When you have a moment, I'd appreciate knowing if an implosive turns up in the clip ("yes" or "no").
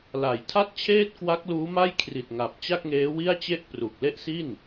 no